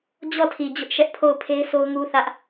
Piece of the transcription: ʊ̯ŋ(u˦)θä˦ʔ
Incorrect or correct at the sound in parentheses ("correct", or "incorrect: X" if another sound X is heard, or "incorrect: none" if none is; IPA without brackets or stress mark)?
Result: correct